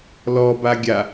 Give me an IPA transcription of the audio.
lɔ baɡʲa

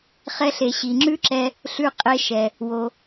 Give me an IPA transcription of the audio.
χɛ˧ɬe˩ ɕi˩ŋ͡ǁʉ˥ǁɛ˧ | ɬʉ˧qʼe˧ʃɛ˩ | wo˩

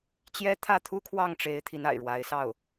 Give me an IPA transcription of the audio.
t͡ɕjɛ˥ t̪ʰä˥˩ t̪ʰu˥kʰwɑ˥˩ŋʈ͡ʂe˧˥ɪ̯ t̪ʰi˧˥na̰˨˩ɪ̯ɻwa˧˥ɪ̯ sɑ˥˩ʊ̯

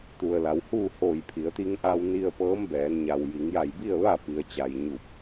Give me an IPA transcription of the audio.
t̪u˩ə̯la˩˧whuː˥˨ hoː˧˩jpʰi˩˧ə̯ t̪i˧ŋʔa˧wni˧ə̯pɤː˧˥m bɛː˩˧nɲa˩w ji˩˧ŋja˧˩jbi˥˨ə̯ ʋa˥˨pi˩ə̯t͡ɕa˩j ɲu˧˩p̚

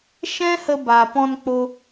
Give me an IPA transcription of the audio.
ʃɛ̃˦hə˧ba˨ pɔ̃˧nk͡po˧

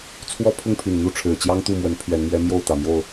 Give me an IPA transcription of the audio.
t͡sʰwɔ˦pʰʊ˥˨ŋpʰy˨˩nn̪u˥˨ ʈ͡ʂʰɻ̩˨˩t͡ɕjɑ˦ŋ t̪u˥˨mwə˨˦n pʰɥɛ˨˦nmɥɛ˦ mjo˥˨ʊ̯ t̪ä˨˩mjo˥˨ʊ̯

